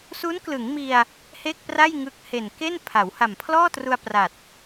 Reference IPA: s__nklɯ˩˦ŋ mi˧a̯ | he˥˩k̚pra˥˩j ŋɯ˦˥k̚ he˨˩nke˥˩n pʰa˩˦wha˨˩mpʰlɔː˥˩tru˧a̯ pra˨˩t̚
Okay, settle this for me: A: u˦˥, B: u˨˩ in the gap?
A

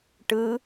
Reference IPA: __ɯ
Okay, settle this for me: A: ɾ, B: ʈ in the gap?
B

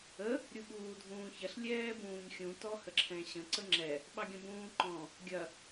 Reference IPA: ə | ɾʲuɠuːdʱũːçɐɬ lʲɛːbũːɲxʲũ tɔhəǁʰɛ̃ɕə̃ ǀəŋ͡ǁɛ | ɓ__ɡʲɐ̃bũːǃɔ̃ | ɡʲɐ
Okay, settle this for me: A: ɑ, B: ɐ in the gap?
A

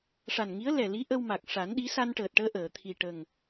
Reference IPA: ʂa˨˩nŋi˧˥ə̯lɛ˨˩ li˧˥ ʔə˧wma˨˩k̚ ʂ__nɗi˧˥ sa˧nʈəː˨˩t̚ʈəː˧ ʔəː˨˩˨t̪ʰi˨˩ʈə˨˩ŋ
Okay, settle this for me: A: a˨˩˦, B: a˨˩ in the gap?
A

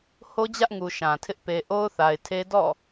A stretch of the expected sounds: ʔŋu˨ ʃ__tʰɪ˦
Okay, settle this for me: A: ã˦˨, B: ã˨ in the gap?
B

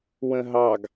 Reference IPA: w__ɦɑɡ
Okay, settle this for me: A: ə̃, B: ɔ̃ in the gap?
A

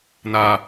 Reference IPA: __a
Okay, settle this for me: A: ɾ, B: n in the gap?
B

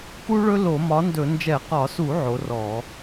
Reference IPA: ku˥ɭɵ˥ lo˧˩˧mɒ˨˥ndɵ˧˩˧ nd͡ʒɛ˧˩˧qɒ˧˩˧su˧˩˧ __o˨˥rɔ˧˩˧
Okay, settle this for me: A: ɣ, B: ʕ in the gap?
B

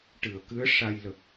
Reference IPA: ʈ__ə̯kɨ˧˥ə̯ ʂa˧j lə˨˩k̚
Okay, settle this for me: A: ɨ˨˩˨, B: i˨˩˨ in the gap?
A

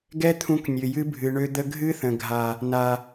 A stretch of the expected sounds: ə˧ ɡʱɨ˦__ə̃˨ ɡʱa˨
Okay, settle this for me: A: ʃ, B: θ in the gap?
B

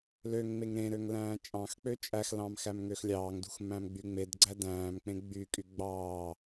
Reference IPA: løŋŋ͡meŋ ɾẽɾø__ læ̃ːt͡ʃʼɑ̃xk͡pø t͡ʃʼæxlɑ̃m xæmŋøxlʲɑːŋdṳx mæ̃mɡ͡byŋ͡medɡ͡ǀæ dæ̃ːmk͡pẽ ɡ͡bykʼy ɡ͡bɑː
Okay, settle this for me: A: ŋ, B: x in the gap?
A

